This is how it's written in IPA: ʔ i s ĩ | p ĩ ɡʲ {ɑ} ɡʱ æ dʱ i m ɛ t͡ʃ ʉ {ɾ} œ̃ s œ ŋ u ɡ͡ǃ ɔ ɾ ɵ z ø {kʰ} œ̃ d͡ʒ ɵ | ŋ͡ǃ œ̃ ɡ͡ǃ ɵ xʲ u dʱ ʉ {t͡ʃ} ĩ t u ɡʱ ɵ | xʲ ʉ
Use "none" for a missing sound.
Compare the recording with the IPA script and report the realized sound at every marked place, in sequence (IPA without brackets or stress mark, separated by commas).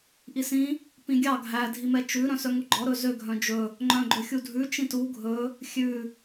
ɑ, ɾ, ɡʱ, t͡ʃ